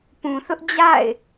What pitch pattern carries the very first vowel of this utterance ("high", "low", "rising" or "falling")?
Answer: low